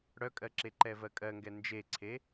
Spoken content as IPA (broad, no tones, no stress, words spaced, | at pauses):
ɽœkʼɜǁe ǃɛvɜkʼɜŋɡɛ nd͡ʒeǀʰe